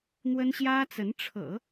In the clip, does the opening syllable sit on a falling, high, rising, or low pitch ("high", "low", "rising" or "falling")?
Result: high